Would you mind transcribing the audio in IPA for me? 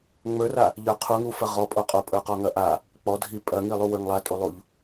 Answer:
ŋ͡mə˞ra | ʎə˞qʰuŋu fɐʁɔpʼo qʼopʼə˞qɔŋɐ ʔa | k͡pɔdʱi pʼɐŋilˠu wə˞ŋlˠatʼulˠuʎ

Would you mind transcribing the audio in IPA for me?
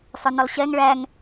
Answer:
sˤʊnəlˠɕɛŋ ɭæŋ

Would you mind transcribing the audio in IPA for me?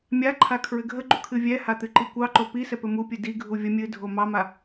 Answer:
mʲaǃʰa kʰɹɘɡʱəɡ͡ǃu kʰɨvʲɛha t̪ɨǃikʷɑǃo pisɛ pɘmupʲɨ diɡʱu vʲə mʲɨ dʱomɑma

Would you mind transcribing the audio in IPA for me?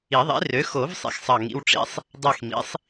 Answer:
i˨˩˦ðˤḭ˩˥rø˩˥ xo˨˩˦v sˤḭ˩˥xsˤɑ˦˨ŋḭ˧˥˧w ʈ͡ʂḭ˧˥˧sˤ | dˤe˦˨xmḭ˩˥sˤ

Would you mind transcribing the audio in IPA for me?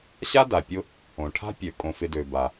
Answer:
ɕa˥da˩pʲʊ˦ | õ˩ʈʰa̤˥pʲø˩ kʼõ˨fɪ˨dø˩ ba˩

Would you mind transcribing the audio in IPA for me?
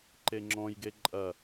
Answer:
ǃeŋ͡ǁɔ̃jɡe ǃʼɐ

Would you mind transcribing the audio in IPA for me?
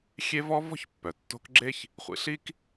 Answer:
xʲe˦vɔ˦ vɔ̤˥çpːœ˩ tːo̤˦kɡ͡ǁe˥ç | χʷḭ˨ɬi˥k

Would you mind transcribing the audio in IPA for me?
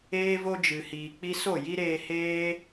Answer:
eː˦ vo˦d͡ʒɨ˨hiː˨ k͡pi˧so˦˨ ji˦ɾeː˧heː˦

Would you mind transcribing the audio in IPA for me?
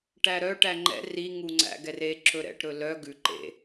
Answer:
ʈæɾœ ʈæŋ͡ǃɛ̰ ri ŋuŋ͡ǀæ̰ɡɛre ǁɵɾɛ̰ʈ ɾɵlœ ɡʉ ǃḛ

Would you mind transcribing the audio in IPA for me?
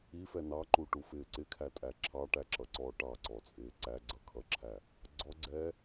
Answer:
ifɛ nɑǃuʈufɪː ǀɪkʰætʼæ ǁʰɑʈæǁʌǀɔː ʈɑǀɔt͡sʼɪː ǀæɡ͡ǀʌkʰʌǁʰæ | ɡ͡ǀɔɡ͡ǀɛː

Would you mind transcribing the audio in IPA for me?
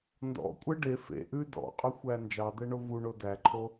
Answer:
ndɔ̰kʷʼɛ ɖe fḛʔʉ dɔ̰qʼʉxʷæ nd͡ʒɑd̪ɛɳo vuɳo dæǃʰo

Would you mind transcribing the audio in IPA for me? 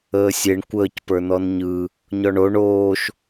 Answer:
əːsʲeɳ kʷəːc pə˞nɔnɲɯ | ɲɔɳo ɳoːʃ

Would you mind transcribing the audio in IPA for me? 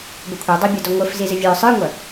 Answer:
bɛkʷʰə˞ dˤɐbʲə˞dɔ ŋʷə˞fzizɘ vʲə˞ sˤə˞ŋʷɐ

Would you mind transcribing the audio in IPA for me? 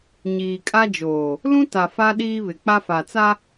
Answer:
ɲiː˨kʼa˦d͡ʒoː˨ | lũ˦ta˨ fa˦ɗiː˦ βɪ˨k͡pa˦fa˨t͡sa˦

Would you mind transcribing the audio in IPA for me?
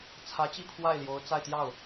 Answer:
t͡sʰä˧˥t͡ɕi˥˧ pʰwa˥˩ɪ̯ljo˧˥ʊ̯t͡sa˥˧ɪ̯t̪jɑ˥˩ʊ̯

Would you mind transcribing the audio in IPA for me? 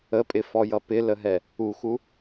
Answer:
əpʼɪfɔjʌ pɪləɦɛ | uxu

